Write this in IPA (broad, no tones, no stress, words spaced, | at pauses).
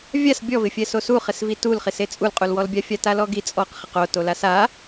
vʲas bʲɔvɪfʲɛ sosuχɪsvi tulχise t͡sʼulqʼulwɔlbʲa fʲatalɔɡi t͡sʼɔq χɪqo tolasa